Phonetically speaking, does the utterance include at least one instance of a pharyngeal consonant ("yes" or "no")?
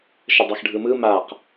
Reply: no